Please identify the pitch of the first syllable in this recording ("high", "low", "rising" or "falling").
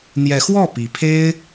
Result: rising